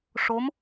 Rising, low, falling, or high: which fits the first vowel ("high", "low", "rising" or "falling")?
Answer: rising